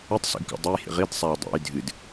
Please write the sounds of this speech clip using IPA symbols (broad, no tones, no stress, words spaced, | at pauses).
ɨtˤsḛɡkṵ dˤʉjhḭ ʁidsˤaj dˤḛj dʱɨd